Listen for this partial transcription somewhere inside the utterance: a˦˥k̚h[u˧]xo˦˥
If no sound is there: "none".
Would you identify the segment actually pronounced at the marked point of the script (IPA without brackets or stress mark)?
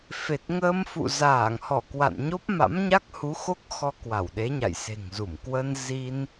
u˨˦